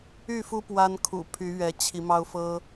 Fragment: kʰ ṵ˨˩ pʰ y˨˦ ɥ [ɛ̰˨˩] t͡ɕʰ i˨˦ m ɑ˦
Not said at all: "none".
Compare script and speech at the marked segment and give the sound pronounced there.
ɛ˨˦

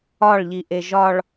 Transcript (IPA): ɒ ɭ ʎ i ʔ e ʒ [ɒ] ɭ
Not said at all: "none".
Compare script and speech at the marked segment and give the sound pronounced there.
ɒ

